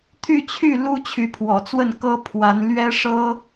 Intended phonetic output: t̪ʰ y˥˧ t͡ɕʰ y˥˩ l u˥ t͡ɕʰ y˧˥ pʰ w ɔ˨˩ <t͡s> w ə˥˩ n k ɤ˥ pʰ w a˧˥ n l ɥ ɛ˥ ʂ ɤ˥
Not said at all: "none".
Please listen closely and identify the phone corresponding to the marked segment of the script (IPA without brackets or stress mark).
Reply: t͡s